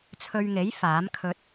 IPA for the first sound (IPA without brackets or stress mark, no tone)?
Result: t͡sʰ